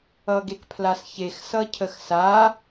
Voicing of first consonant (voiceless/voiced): voiced